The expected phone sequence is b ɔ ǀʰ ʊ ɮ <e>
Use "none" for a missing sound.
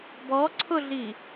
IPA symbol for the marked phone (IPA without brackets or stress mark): i